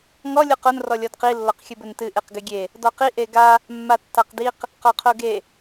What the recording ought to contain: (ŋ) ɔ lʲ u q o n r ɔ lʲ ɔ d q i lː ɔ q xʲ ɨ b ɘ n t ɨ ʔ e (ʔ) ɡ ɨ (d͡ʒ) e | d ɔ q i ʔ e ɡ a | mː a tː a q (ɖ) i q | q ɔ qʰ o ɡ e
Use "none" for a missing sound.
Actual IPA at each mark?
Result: ŋ, q, ɡʲ, d

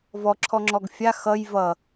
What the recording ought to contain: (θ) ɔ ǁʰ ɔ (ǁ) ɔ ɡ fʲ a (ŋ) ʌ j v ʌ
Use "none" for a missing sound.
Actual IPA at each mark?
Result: v, ŋ͡ǁ, x

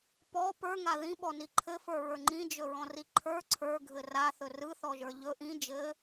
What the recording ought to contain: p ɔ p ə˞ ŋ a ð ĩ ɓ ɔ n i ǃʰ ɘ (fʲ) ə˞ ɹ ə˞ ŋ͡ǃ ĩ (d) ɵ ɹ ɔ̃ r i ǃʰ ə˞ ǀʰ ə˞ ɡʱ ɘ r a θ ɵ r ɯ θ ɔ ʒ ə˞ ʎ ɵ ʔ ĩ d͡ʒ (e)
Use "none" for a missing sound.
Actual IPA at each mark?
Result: f, d͡ʒ, ɘ

